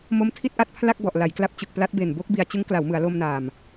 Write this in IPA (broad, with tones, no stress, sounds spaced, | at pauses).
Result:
m o˦˥ m tʰ i˥˩ t̚ ʔ a˦˥ t̚ pʰ l a˥˩ k̚ b ɔ˨˩ ʔ l a˩˦ j k l a˦˥ p̚ t͡ɕ ɯ˨˩ k̚ p l a˦˥ t̚ b e˨˩ n b o˦˥ k̚ b i˨˩ a̯ t͡ɕ ɯ˦˥ ŋ k l a˩˦ w m ɯ˩˦ a̯ l o˧ m n aː˨˩ m